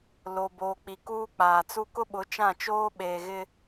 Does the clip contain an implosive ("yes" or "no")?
yes